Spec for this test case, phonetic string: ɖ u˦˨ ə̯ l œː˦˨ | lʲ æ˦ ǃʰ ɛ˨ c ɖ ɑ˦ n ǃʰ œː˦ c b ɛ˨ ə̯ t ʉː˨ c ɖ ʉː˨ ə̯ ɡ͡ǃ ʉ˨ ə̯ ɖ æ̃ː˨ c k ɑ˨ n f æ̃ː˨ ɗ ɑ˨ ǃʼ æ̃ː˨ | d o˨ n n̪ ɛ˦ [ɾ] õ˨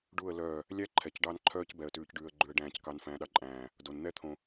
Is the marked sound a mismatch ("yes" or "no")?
yes